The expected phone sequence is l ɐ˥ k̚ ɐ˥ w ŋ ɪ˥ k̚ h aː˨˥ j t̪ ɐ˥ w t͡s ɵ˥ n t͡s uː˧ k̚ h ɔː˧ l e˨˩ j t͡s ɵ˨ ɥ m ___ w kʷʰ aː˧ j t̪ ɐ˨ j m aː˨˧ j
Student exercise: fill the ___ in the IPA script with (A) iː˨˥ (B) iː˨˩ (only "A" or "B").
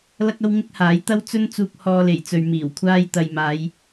B